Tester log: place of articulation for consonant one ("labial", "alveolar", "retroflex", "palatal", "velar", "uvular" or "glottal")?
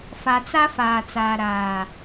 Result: labial